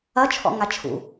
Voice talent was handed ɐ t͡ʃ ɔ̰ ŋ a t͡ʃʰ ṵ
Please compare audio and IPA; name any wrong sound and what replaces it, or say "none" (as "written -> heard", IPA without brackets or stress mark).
t͡ʃ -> t͡ʃʰ